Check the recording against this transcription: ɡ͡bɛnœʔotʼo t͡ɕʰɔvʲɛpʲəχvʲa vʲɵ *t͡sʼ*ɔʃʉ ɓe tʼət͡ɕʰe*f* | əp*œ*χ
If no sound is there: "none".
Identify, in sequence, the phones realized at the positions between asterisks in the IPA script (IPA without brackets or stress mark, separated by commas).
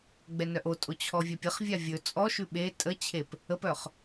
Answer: t͡sʼ, p, œ